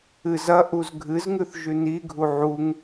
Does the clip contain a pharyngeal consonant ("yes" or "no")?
yes